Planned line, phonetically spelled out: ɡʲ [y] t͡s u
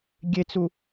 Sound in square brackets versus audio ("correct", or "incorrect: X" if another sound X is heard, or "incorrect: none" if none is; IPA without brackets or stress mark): incorrect: e